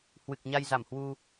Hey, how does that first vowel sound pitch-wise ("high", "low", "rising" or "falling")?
low